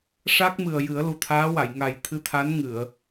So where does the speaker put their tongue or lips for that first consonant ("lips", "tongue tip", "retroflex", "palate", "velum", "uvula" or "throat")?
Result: retroflex